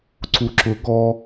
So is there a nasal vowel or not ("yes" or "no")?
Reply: no